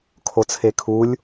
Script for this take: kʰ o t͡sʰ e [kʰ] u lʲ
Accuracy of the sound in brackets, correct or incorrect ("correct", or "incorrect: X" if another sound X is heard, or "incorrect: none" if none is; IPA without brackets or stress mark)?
correct